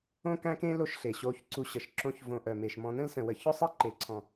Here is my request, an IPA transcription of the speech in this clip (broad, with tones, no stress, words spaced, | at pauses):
õ˦kæ̃˦kẽ˦ lo˦ʃ ɬe˨ ɕo˧ç ǀu˧ɕə˨ʃǁõ˦çvõ˧ ʔœ˨me˨ʃmɔ̃˧ nə̃˦lsə̃˨wə˨ çʊ˦sˤe˦ǃe˨ ǀʰɔ̃˨